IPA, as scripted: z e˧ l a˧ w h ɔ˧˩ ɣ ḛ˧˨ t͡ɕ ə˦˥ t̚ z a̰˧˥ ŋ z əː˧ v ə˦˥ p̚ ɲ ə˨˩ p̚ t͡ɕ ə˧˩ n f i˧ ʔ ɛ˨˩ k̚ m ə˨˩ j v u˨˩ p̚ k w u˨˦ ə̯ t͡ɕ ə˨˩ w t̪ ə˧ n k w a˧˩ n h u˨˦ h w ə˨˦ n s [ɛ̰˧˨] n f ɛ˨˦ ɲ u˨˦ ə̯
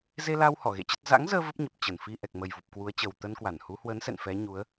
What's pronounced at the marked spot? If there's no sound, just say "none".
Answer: ɛ̰˧˨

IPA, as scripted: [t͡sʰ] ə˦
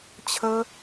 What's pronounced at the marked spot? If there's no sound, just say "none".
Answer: t͡ɕʰ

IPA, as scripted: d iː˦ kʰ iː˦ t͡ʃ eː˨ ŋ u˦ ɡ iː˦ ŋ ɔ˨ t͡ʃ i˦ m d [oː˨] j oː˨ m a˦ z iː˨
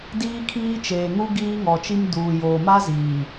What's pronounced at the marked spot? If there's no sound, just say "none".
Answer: uː˨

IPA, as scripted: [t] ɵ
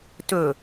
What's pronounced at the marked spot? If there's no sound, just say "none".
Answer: t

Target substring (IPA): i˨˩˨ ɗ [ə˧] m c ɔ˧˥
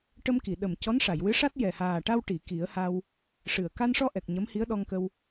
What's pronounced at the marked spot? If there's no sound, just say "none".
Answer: ə˨˩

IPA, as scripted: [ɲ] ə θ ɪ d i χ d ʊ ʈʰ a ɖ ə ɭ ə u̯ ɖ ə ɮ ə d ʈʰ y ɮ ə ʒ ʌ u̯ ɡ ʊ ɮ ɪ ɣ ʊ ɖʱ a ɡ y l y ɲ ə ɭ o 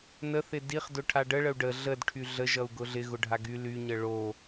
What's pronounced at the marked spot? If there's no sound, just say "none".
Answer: n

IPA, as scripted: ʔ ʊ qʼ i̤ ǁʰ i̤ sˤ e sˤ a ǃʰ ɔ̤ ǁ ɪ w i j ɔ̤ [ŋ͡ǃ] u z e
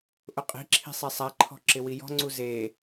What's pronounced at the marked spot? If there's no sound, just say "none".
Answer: ŋ͡ǀ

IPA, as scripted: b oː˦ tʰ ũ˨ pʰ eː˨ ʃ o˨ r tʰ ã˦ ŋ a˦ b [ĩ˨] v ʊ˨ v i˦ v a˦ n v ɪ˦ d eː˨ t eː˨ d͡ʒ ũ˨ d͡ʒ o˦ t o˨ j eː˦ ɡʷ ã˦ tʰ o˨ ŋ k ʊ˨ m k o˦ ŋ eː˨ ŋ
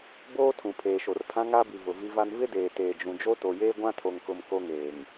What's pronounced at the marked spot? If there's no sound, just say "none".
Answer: i˨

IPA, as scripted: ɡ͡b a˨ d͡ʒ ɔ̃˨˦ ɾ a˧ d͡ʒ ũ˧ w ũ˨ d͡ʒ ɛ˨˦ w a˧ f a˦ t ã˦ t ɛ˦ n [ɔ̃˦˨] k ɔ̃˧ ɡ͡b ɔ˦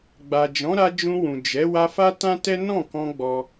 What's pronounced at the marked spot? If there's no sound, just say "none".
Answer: ɔ̃˦˨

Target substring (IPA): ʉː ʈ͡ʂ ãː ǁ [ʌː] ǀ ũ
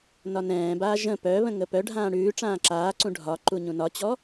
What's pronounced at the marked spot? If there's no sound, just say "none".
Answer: aː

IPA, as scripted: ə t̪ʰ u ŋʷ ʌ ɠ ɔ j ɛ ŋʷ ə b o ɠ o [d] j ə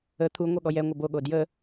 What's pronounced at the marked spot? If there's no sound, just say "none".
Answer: d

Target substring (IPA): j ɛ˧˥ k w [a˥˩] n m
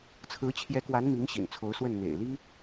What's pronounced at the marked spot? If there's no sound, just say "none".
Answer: a˧˥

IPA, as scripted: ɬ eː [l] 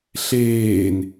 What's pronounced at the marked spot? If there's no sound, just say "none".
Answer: n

